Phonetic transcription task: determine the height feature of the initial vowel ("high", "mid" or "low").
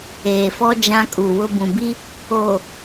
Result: mid